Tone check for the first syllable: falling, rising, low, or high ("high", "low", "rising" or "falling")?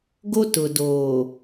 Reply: high